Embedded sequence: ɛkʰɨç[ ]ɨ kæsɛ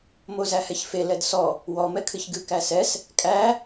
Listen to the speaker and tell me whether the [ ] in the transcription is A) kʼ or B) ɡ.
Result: B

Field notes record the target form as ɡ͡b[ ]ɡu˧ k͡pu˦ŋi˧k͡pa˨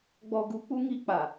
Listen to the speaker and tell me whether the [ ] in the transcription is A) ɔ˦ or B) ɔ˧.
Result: B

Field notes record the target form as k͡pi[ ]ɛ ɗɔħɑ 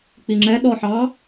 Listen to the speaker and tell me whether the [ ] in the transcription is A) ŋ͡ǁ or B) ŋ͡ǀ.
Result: A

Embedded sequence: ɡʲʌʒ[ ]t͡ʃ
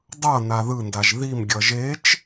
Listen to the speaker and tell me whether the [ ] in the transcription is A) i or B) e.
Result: B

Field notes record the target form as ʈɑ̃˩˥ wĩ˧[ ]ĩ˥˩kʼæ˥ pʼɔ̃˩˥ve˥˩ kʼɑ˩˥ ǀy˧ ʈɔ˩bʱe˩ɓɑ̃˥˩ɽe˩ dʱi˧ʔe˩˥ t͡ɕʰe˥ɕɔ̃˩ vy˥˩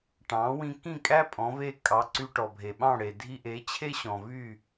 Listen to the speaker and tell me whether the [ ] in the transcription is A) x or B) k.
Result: B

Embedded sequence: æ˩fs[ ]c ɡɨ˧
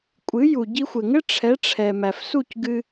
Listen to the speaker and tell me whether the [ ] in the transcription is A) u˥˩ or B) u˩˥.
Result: A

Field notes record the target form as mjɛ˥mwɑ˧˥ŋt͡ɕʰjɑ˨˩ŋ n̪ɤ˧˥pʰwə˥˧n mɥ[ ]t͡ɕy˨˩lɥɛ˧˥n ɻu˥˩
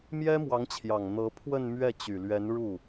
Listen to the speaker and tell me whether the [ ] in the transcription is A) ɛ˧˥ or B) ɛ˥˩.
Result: B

